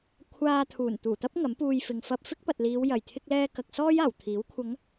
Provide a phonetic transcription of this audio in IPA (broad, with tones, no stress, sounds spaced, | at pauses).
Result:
kʷʰ aː˧ t̪ʰ uː˨˩ n t̪ uː˨˩ t̪ ɐ˥ p̚ ŋ ɐ˨˥ m p uː˧ j f ɪ˨ ŋ f ɐ˧ p̚ f ɪ˥ k̚ p ɐ˨ t̚ l iː˨˧ w j ɐ˨˩ j t̪ʰ ɪ˧ k̚ l ɛː˧ k ɐ˨ k̚ s ɔː˥ j aː˨˩ w t̪ʰ iː˨˥ w kʷʰ ɐ˨˧ ŋ